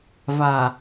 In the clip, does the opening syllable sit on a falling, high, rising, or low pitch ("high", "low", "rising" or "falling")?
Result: low